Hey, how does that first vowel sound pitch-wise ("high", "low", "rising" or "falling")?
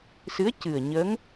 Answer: rising